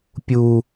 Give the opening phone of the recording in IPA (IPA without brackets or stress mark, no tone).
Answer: pʲ